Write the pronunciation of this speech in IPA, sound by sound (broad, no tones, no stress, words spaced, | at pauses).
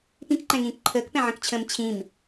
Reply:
pĩkǃɛ̃ŋĩːk ǃʰəːkpɛ̃ʕə̃kt͡ɕʰə̃ːm t͡ɕʰĩm